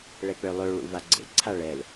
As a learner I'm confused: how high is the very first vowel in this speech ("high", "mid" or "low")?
mid